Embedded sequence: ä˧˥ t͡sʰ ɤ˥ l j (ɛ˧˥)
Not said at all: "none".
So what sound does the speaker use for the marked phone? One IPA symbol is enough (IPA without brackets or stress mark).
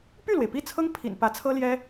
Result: ɛ˥